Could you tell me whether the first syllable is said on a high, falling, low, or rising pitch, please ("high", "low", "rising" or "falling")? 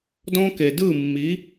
high